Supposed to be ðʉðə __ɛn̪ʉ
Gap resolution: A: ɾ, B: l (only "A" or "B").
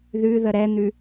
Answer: A